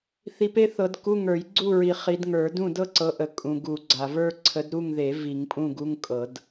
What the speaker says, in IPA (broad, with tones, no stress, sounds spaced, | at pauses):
θ i˨˦ p e˥ θ ɤ˨˩˦ d k u˧˥˧ ŋ ə˞˨˩˦ j ɡ͡ǀ u˥˨ ɹ i˨ χ i˨˦ d ŋ ə˞˨˩˦ d ũ˥˨ d ɤ˥ ǀ ɤ˨˦ ʔ ə˨ kʼ ũ˨ ɡ u˨˩˦ ɡ͡ǀ a˨ v ə˞˥ ǀʰ ə˨˦ d ɾ u˥˨ ŋ ð e˨˩˦ v i˨˩˦ ŋ pʼ ũ˥˨ ɡ u˧˥˧ ŋ kʼ ɤ˨˩˦ d